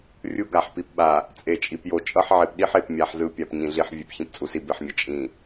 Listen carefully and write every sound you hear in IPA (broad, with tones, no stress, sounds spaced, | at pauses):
rʲ u˦ ɡ a˨ ħ p i˨ p ɓ a˨ | t͡sʼ e˨ t͡ʃʼ i˨ p j o˨ t͡ʃʼ ʌ˦ ħ ʕ e˨ p ɗ i˦ ħ e˨ p mʲ a˨ ħ z ɯ˨ pʲ a˨ p ɲ ĩ˨ ɮ i˨ ħ vʲ e˨ p ç ĩ˨ p t͡sʼ u˨ s i˨ b e˨ ħ mʲ ʌ˨ t͡ʃʼ ĩ˨